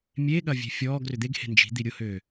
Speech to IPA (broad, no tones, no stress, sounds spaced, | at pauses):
mʲ e ɠ ɐ vʲ e̤ fʲ ɔː ɡ r ʏ d̪ e ɡ h e̤ n d͡ʒ i̤ d̪ i ɾʲ ʊ h øː